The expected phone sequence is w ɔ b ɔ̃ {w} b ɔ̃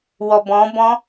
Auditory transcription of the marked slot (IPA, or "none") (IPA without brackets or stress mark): none